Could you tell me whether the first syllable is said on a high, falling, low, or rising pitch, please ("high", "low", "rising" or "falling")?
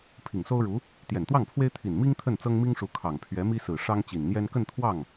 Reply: low